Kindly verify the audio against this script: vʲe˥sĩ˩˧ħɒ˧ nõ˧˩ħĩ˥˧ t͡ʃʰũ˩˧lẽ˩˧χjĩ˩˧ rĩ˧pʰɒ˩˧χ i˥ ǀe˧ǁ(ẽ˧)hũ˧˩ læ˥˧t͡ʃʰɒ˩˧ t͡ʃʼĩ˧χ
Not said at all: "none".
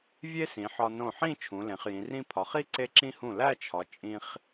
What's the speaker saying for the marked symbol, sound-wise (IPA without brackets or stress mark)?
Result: ĩ˧